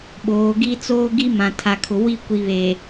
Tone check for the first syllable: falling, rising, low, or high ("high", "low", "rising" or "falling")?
rising